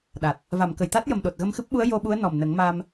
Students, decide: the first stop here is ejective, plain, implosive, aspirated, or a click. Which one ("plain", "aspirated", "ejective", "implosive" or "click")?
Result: implosive